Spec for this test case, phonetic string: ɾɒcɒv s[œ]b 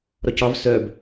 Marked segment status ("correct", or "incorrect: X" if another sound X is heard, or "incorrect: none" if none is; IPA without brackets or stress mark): correct